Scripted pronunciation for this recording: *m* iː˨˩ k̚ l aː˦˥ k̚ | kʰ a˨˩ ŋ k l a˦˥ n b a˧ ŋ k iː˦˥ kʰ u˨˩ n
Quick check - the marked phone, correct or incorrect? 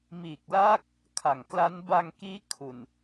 correct